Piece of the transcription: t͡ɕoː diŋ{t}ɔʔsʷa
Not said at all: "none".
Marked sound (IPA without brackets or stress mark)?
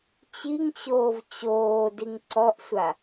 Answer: ǀ